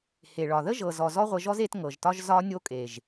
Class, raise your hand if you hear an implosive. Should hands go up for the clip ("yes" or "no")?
no